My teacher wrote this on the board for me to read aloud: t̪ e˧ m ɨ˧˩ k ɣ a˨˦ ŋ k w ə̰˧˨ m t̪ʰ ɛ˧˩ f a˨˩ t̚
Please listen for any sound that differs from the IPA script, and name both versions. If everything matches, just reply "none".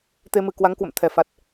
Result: ɣ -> w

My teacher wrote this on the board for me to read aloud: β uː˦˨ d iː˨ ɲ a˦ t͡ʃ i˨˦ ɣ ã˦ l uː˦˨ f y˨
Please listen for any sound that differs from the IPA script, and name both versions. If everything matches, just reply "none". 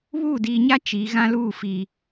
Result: y˨ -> i˨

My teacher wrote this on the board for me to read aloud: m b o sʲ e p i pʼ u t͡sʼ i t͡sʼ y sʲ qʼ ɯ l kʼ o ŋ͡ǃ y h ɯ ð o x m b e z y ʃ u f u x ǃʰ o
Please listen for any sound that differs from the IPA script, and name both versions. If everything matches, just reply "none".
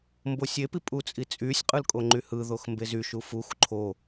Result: none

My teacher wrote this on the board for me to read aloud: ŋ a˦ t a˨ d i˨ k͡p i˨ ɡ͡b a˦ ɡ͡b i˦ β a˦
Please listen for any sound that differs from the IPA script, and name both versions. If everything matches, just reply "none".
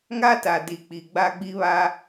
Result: none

